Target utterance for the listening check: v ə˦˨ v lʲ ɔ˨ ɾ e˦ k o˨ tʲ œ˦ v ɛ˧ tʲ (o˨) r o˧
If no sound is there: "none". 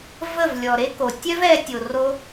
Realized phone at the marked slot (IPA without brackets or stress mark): o˨